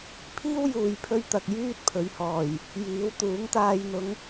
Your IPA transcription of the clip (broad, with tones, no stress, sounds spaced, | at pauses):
pʰ iː˥ w j uː˨ j pʰ ɵ˧ ɥ t̪ ɐ˨ k̚ j yː˥ t̚ pʰ ɵ˨˧ ɥ h ɔː˨˩ j | j iː˨˥ w t̪ uː˨˥ ŋ t̪ aː˧ j n̪ ʊ˨˧ ŋ